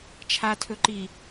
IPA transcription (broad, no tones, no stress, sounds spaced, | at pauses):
t͡ʃʰ a tʰ ɵ ǃ i